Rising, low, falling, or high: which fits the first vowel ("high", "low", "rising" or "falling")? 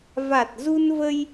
low